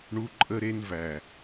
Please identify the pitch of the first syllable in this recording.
high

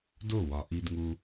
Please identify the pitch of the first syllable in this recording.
falling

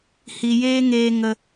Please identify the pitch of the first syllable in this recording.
low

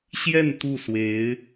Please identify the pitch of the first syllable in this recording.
falling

